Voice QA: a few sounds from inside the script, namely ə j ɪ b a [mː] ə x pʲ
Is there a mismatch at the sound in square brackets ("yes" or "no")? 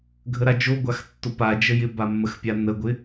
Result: no